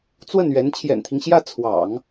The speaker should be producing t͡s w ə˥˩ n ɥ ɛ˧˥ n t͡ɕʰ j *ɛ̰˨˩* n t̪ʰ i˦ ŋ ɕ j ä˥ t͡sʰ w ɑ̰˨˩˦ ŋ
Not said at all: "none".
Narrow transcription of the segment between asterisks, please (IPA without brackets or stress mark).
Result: ɛ̰˨˩